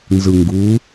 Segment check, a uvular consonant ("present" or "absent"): absent